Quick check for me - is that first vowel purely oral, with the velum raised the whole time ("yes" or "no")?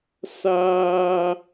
yes